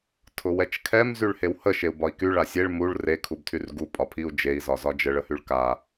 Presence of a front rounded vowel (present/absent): present